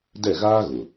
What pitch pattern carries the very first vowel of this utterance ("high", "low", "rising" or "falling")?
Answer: falling